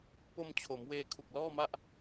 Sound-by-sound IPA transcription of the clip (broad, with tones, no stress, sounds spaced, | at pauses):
p o˧ m t͡ɕʰ o˩˦ m w eː˧ kʰ u˨˩ k̚ l ɔː˥˩ m a˥˩ ʔ